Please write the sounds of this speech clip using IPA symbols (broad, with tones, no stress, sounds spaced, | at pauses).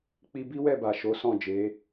k͡p i˧ b i˦ w ɛ˦˨ b a˨ ʃ o˨˦ s ɔ̃˦˨ d͡ʒ e˨˦